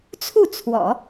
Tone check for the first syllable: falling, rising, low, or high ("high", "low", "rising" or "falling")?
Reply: falling